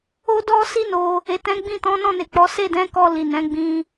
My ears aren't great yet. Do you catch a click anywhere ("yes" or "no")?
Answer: no